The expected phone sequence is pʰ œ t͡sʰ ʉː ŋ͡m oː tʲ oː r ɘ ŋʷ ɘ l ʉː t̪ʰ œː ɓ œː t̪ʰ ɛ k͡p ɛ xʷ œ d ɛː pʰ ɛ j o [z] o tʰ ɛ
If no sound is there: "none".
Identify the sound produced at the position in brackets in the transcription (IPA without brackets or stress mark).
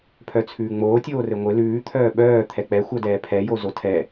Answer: z